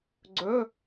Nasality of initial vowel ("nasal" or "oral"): oral